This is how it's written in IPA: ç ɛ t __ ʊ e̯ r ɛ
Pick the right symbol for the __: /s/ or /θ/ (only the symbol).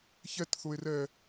θ